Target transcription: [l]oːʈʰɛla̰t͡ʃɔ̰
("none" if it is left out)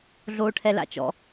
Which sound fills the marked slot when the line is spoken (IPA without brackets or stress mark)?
ɮ